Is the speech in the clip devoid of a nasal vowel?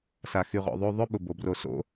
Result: yes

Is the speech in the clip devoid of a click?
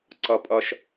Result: no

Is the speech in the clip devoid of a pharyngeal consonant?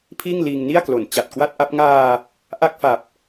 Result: yes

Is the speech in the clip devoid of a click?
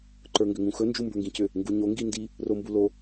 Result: no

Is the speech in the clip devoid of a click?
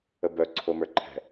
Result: no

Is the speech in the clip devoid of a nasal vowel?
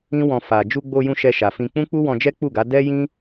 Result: no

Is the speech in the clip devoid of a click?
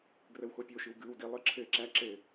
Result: no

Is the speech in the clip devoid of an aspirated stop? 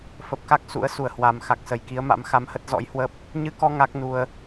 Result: yes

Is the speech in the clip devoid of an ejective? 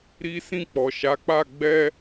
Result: yes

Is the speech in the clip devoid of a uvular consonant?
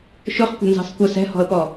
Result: no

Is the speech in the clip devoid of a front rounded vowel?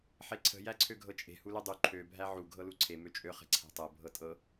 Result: no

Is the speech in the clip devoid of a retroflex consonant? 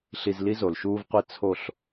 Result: yes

